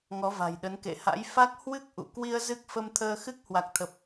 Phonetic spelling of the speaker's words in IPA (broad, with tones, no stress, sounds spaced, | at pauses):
ŋ ɔ˨˦ v a̤˨˩ j ɗ ə˨˦ n k ḛ˧˨ h a̰˧˥ j f a˦˥ k̚ h w ɨ˦˥ k̚ ʔ ṵ˧˨ k w i˧ ə̯ z ɨ˦˥ k̚ f ə˧ m t̪ʰ əː˧ x ɨ˦˥ k̚ h w a˨˩ k̚ t̪ʰ ə˨˩ p̚